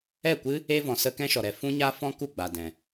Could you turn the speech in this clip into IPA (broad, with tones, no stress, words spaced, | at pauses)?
ɛ˦˨kʷɨ˦ | e˦vɔ̃˨sə˦ kɛ̃˦ʃɔ˨ɾɛ˧ fũ˦ɲa˦ fɔ̃˦ku˦˨ɡ͡ba˨dɛ̃˨